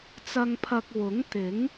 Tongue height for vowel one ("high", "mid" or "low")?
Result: low